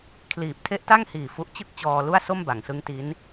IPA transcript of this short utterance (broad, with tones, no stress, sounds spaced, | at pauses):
kʰ l iː˨˩ p̚ tʰ e˥˩ ʔ t a˥˩ ŋ h iː˨˩ f u˦˥ ʔ t͡ɕ ɯ˥˩ k̚ t͡ɕ ɔː˧ l u˥˩ a̯ s o˥˩ m b a˩˦ ŋ s ɯ˦˥ ŋ t i˦˥ n